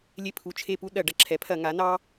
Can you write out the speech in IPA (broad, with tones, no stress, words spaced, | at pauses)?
lʲe˦˨pʰu˨˩ t͡ʃʰe˦˨pu˦ ɗɐ˧˩˧ ɖɐ˨˩ǁʰɛ˩˥pʰɐ˧˩˧ ŋa˩˥nɑ˦